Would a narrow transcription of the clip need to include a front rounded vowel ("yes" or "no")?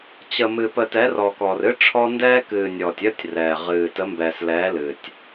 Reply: no